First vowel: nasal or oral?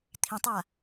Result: nasal